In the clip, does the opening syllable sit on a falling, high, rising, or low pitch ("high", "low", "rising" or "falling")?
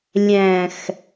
low